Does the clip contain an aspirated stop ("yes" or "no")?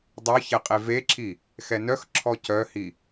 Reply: yes